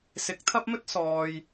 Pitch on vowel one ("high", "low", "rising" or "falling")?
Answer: rising